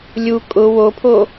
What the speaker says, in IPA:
lʲ u kʼ ʊ w o pʰ o

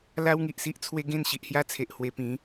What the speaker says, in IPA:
l a˦ w ŋ i˨ ʔ s i˦ ʔ t͡sʰ w e˦ ɡ ẽ˥˧ n ɕ i˨ ʔ h j a˦ t͡sʰ e˨ ʔ h w e˧ p ĩ˨˦

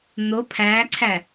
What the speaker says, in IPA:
n̪ o pʰ æː ǀʰ æ

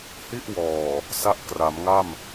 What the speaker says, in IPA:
h i˥˩ ʔ w ɔː˨˩ | s a˦˥ ʔ k r a˩˦ m ŋ a˥˩ m

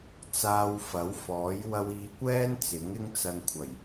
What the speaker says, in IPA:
t͡s aː˧ w f ɐ˨˥ w f ɔː˨˥ j w ɐ˧ w iː˨˧ kʷ ɛː˥ n t͡s ɪ˨˥ ŋ ɪ˥ ŋ t͡s ɐ˧ n kʷʰ ɐ˨˩ j

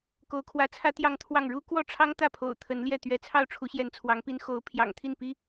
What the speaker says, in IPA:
k o˧˥ ʊ̯ kʰ w ä˧˥ t͡sʰ ä˥ t̪ j ɑ˥˧ ŋ t̪ʰ w ɑ˥˩ ŋ ɻ u˥ k w ɔ˥˩ ʈ͡ʂʰ ɑ˥ ŋ t̪ ä˥˩ pʰ o̰˨˩ ʊ̯ t̪ʰ ə˧˥ n l j ɛ˥˩ t̪ ɥ ɛ˧˥ t͡sʰ ɑ˥˩ ʊ̯ ʈ͡ʂʰ u˧˥ ɕ j ɛ˧˥ n t͡sʰ w ɑ˧˥ ŋ p i˥ n x o˧˥ ʊ̯ pʰ j ɑ̰˨˩ ŋ t̪ʰ i˥˩ n p i˥

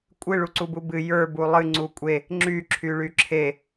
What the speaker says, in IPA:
kʷʼ ɨ ɭ u ǀ u b u b ɨ j ə˞ b u lˠ ɨ ŋ͡ǀ u kʷʼ e | ŋ͡ǁ y ǁʰ y ɭ y ǁʰ e

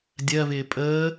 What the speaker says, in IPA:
dʲ ɜ v ɪː pʼ əː

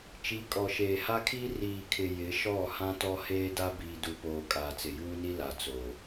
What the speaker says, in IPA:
t͡ʃ i˨˦ kʼ ɔ˨ ʃ eː˨ h a˦ kʰ iː˦ r iː˨ kʰ ɪ˨ j ɪ˨˦ ʃ ɔ˦˨ h ã˦ t ɔ˦ h eː˦ d a˦ b iː˨ d u˨ p oː˨ kʼ aː˨ t͡s ɪ˨ j uː˦ n i˦ l a˨ t͡s o˨

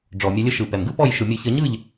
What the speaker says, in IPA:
ɖ͡ʐ ɔ˩ mʲ ə˧˩˧ lʲ ə˨˦ ʃ ɯ˩ p ɛ˩ m ɡ ɯ˥ p ɔ˥˩ j ʃ ɯ˩ mʲ ʊ˧˩˧ ç ə˧˩˧ ɲ ɯ˥˩ ʎ

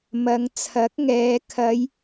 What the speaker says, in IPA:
m ɐ˨˧ ŋ t͡sʰ ɐ˨˥ k̚ ŋ ɛː˨˧ kʰ ɐ˨˧ j

